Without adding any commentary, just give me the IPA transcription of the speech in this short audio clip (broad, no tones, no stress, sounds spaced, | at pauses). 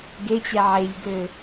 ɡ e t͡ɕ ɛ ʕ e ʎ ɡ ø